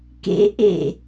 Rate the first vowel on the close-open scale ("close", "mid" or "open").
mid